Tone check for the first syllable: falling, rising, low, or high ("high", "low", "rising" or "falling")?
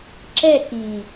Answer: falling